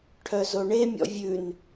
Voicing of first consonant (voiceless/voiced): voiceless